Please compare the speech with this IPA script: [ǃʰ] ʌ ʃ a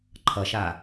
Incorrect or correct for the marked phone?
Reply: correct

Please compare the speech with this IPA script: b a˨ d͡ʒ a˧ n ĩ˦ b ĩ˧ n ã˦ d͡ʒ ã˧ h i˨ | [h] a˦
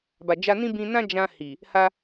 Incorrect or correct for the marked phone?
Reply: correct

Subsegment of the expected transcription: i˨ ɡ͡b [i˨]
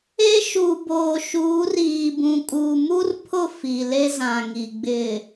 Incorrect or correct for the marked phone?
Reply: incorrect: ɪ˨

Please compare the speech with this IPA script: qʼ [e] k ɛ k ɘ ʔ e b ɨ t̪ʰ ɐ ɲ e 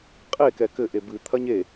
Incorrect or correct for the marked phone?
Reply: correct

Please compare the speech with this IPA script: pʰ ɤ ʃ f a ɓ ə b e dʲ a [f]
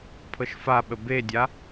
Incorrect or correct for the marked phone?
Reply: incorrect: none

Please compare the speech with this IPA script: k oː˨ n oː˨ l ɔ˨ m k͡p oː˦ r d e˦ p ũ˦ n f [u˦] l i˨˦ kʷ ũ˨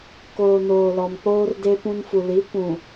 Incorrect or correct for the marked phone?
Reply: incorrect: u˨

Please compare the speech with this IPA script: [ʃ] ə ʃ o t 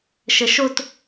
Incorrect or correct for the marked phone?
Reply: correct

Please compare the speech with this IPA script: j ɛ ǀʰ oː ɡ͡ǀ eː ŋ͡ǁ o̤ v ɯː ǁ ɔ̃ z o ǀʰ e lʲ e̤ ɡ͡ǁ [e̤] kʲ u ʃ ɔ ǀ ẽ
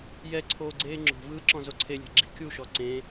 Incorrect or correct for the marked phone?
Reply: incorrect: i̤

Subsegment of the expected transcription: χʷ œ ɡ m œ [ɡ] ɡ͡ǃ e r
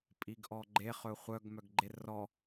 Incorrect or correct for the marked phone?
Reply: correct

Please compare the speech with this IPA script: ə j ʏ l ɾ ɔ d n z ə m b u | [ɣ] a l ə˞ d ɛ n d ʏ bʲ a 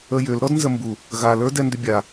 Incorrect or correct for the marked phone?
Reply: correct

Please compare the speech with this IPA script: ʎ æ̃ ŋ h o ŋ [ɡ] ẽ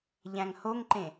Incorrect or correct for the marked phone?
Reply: incorrect: ǃ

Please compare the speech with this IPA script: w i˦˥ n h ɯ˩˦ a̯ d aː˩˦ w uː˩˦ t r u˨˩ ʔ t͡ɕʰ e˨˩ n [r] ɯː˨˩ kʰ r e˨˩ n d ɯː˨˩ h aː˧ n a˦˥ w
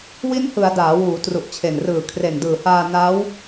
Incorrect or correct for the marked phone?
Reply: correct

